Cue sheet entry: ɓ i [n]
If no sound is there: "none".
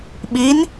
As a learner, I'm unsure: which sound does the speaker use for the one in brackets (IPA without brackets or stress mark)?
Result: n